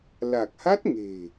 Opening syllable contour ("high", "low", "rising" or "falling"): low